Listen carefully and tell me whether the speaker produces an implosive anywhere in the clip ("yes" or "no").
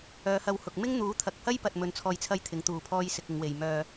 no